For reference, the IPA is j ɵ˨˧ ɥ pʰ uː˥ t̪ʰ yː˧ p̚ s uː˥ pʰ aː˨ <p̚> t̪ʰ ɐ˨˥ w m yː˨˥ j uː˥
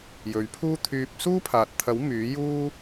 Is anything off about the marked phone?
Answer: yes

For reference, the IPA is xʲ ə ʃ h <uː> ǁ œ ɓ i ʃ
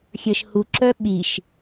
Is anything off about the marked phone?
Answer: yes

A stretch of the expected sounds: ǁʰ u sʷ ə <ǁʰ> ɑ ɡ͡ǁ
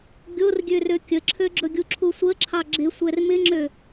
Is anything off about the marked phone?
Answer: no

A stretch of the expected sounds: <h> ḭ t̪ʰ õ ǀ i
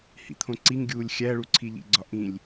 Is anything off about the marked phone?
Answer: no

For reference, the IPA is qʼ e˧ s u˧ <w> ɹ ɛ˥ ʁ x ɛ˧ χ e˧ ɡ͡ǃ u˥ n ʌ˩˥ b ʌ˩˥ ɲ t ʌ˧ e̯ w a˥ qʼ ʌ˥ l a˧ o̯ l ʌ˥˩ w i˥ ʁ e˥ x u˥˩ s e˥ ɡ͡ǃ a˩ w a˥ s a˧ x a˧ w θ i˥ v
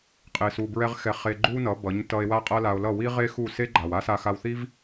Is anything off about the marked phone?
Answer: yes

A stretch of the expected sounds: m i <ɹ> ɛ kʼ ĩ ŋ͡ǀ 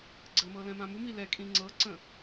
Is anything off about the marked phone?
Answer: yes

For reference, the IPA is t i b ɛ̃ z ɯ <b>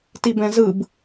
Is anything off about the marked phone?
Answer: no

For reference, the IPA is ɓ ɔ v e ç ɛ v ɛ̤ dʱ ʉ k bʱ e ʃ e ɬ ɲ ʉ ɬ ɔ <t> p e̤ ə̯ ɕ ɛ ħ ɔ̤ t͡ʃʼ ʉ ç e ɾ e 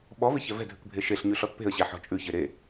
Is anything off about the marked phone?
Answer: no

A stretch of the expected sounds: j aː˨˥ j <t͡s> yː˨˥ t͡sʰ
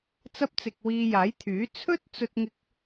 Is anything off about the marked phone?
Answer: yes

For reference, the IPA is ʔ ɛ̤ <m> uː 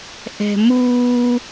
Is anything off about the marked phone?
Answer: no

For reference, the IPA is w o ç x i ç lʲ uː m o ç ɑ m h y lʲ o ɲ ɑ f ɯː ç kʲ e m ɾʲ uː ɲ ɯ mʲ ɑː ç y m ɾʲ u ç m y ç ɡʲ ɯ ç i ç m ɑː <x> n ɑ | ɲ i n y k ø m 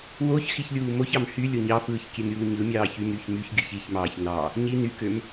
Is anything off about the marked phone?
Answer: yes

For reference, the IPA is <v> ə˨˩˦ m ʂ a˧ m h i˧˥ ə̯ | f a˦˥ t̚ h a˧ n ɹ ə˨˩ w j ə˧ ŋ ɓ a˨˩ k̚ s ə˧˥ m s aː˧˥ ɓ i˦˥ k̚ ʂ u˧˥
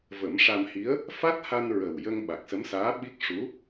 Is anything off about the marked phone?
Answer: no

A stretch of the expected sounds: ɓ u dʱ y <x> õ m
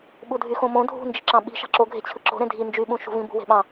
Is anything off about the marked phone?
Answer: no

